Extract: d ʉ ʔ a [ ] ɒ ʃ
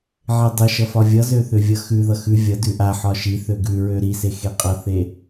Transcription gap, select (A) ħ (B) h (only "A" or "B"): A